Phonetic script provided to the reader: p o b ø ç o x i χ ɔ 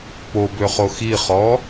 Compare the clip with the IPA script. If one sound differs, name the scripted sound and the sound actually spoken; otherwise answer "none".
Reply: ç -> χ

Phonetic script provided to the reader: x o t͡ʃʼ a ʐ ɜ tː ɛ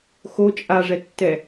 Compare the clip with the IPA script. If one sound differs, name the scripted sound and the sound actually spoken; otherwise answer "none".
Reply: ɜ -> ɛ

